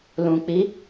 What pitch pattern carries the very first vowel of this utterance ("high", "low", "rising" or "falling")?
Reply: low